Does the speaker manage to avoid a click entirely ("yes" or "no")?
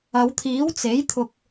yes